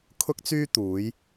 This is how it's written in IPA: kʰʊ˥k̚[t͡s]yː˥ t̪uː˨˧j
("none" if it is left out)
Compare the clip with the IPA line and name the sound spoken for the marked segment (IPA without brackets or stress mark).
t͡s